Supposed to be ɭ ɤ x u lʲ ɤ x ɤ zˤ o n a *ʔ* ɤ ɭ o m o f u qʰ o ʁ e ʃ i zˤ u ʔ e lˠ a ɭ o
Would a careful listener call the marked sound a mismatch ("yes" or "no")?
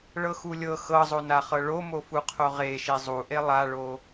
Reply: yes